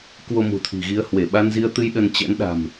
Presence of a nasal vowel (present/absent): absent